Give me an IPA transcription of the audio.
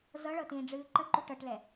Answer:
z ɤ ɭ ɤ t ĩː ɖ͡ʐ ɨː ǃ ə ǃ u ʈ ɤ ʈ l ɛ

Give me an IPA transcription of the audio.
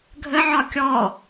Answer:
ɡʱ ə ʕ ɒ kʲ ɔ

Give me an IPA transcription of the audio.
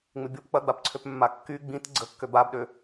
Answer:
ŋ͡m ɪ bʲ o p k͡p ɐ ɡ͡b a p ǀʰ ø p mː a kː y ɡ͡b ĩ t ɡ͡ǀ ə kː ø b a b ɗ ø

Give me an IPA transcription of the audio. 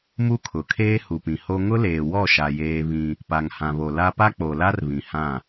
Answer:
m u˦ kʰ ʊ˨ kʰ eː˦ h u˨ p ĩ˨ h o˦ ŋ ʊ˦ l eː˨ w ɔ˦˨ ʃ a˨ j eː˦ β ĩ˦ | p a˨ ŋ h ã˨ β o˨ l a˦ p a˦ k͡p o˨ l a˦ r β ĩ˨ h ã˦˨

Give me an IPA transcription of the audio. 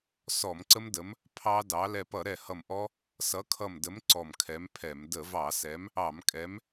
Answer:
s ɔ˧˩˧ m ǀ ə˦˥ m d ə˨˥ m | pʰ ɑ˦˥ d ɑ˨˥ l ɛ˧˩ p ʌ˧˩˧ ɾ ɛ˧˩ h ʌ˧˩ m ʔ ɔ˦˥ | s ʌ˨˥ kʰ ʌ˧˩ m d ə˨˥ m ǀ ɔ˧˩ m kʰ ɛ˨˥ m pʰ ɛ˧˩˧ m d ə˧˩˧ v ɑ˧˩˧ s ɛ˨˥ m | ɑ˧˩˧ m kʼ ɛ˨˥ m

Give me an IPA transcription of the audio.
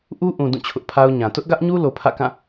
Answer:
ʔ u˦ ʔ ũ˨ d ũ˦˨ t͡ɕʰ ʊ˦ ʔ pʰ a˦ ʊ̯ ɲ ã˨ t ʊ˦ ʔ ɡ ä˦ ʔ ɲ u˦ l o˨ pʰ ä̰˦˨ k ã˦˨

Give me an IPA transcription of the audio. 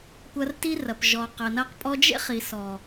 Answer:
kʷ ɐ˧ r t i˦ r ɐ˨ p ʒ ɔ˨ q ɐ˨ n ɐ˧ q pʼ ɔ˧ d͡ʒ ḛ˦ χ i˨ s ɔ˨

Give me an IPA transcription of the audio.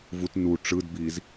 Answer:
v u t n u ʈ͡ʂ ɯ d b iː z

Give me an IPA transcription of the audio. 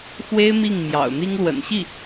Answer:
x w e˥ ɪ̯ m i˥˩ ŋ m j ɑ̰˨˩ ʊ̯ n̪ i˥ ŋ l w ə̰˨˩ n ɕ i˥˩

